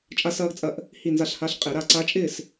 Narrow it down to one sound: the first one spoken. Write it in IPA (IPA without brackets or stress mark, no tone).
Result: t͡ʃʼ